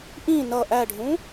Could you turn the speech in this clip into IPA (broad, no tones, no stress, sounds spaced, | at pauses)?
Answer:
ʔ ĩ n ʌ ʔ æ ɖʱ ũ